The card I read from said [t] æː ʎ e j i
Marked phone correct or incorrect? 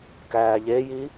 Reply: incorrect